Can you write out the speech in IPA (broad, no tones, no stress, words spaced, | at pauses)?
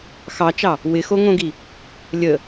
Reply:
xɑt͡ʃɑ | wɪxoŋõɡi | lʲə